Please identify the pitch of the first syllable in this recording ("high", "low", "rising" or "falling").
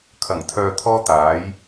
low